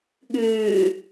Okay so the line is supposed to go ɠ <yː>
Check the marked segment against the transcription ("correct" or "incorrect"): correct